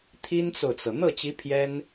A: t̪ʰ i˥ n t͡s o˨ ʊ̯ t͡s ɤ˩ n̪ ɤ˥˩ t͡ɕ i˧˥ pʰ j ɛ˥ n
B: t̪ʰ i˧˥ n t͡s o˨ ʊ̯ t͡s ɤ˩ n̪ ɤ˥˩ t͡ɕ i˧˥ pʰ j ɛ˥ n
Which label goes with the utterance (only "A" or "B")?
A